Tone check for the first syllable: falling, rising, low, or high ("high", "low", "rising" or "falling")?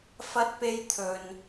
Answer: high